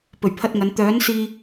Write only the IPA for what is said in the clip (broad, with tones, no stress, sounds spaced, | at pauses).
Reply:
p ɵ˨˩ ɥ pʰ ɐ˧ t̚ ŋ ɐ˨˧ n t̪ œː˨˥ n s iː˧